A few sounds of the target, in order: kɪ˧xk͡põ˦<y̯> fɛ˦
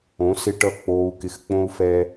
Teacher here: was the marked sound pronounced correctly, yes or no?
no